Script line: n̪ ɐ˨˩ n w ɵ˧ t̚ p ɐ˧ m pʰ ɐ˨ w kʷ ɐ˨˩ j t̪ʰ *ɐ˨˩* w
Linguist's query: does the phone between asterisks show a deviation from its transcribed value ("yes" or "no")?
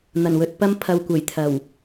no